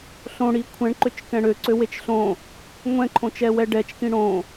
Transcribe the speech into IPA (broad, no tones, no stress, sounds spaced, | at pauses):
ɬ õ ɽ i kʷʰ ɛ̃ ɳ ǃ ø t͡ʃ k ɛ̃ ɽ ø ǀ ø w e t͡ʃ ɬ õ | ŋʷ ɛ̃ ǃʰ õ t͡ʃ ɛ w ɛ ɖ ɛ t͡ʃ k ĩ ɽ õ